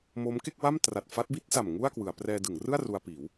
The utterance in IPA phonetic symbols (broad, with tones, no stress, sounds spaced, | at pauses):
m o˦˥ m k e˥˩ k̚ w a˥˩ m t r a˨˩ t̚ f a˦˥ t̚ b i˥˩ t̚ s a˨˩ m ŋ u˥˩ a̯ k w ɯ˩˦ a̯ p r ɛː˧ d ɯ˩˦ ŋ r ɯ˥˩ a̯ r u˧ a̯ p iː˩˦ w